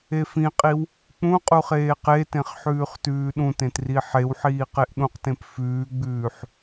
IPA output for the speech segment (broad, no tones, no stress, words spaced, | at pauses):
efĩqʼiw | k͡pũ qʼuχeːqetẽχ ħʉːχtʉːɗũtẽt riħewħiː qeʔɗũqtẽp fʉːɡ͡bʉːħ